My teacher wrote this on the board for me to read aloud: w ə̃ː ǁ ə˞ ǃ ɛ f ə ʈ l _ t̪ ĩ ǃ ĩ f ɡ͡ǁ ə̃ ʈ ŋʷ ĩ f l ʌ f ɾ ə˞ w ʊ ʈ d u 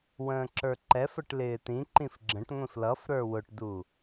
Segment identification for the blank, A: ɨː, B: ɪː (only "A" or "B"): B